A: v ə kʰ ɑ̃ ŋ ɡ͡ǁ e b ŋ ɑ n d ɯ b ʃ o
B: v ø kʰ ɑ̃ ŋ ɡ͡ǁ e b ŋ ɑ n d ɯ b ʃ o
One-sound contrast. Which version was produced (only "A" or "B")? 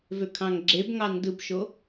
B